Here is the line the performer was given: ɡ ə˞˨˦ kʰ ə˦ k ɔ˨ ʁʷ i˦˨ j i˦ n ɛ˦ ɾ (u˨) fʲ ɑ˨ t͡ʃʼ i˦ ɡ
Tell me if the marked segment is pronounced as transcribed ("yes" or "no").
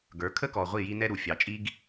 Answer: yes